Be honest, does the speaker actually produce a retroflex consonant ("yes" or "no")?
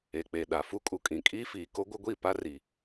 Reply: no